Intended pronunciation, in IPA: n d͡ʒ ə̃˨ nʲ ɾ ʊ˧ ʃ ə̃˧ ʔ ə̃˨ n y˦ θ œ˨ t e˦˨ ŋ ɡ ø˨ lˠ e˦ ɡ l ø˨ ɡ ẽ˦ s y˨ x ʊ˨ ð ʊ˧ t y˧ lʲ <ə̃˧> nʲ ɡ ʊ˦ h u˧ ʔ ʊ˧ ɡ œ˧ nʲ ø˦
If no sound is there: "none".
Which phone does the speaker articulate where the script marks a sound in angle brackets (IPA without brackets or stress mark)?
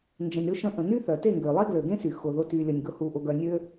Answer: ə˧